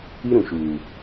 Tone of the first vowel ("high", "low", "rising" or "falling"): high